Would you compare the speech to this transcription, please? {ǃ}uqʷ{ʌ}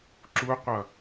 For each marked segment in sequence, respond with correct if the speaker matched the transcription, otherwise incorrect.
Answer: incorrect, correct

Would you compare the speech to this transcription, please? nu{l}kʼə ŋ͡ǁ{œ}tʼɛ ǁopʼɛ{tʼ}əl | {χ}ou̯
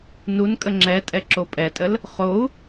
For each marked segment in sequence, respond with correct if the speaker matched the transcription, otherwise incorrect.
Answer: incorrect, incorrect, correct, correct

